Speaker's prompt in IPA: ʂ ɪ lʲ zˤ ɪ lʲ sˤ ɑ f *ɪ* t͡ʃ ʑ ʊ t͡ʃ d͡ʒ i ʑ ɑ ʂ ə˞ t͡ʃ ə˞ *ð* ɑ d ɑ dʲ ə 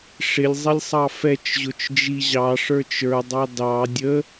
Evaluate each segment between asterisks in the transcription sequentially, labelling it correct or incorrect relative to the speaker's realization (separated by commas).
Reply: incorrect, incorrect